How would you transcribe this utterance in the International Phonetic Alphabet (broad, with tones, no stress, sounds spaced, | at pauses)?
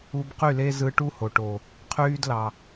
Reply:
u˧ b q y˦˨ l e˦ z ɯ˧ ʈ u˦ h o˨ ʈ o˨ | qʰ yː˦ d l ɑ˨